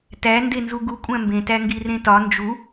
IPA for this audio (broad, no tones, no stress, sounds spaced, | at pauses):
t æ n d e n z u ɡ u kʷʼ æ̃ m b ẽ t æ ŋ ɡ i r ẽ t ɒ n d͡ʒ u